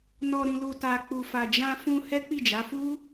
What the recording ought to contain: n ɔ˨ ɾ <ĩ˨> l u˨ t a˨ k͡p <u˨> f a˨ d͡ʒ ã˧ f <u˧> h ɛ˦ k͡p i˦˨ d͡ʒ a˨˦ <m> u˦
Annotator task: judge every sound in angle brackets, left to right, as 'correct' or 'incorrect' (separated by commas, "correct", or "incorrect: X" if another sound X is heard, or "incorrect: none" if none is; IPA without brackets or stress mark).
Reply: correct, correct, incorrect: ũ˧, incorrect: f